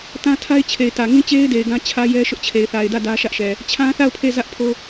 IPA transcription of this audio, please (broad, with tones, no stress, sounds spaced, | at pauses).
t ã˦ tʰ a˦ ɪ̯ t͡ɕʰ e˨ ɪ̯ t ä˨ ŋ ĩ˦ t͡ɕ e˦ ɪ̯ d e˨ ɪ̯ ɡ ã˦ t͡ɕʰ ä˦ j ɛ˦ ʃ ʊ˦ ʔ t͡ɕʰ e˨ ɪ̯ θ a˨ ɪ̯ d ä˦˨ d ä˦ ʃ ä˦ ʔ ʃ ɛ˨ | t͡ɕʰ ã˦ θ a˦˨ ʊ̯ pʰ e˦˨ z ä˦ ʔ pʰ o˦